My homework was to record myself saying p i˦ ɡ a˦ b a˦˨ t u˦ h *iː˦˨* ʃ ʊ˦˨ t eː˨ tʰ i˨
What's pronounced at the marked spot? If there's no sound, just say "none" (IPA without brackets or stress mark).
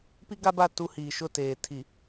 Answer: iː˨